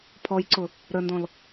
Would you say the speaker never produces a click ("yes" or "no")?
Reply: no